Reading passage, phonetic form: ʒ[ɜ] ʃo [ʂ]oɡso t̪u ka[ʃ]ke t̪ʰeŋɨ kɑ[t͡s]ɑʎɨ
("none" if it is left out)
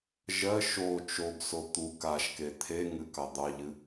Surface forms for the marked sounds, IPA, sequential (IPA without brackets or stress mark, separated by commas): ɜ, t͡ʃ, ʃ, d̪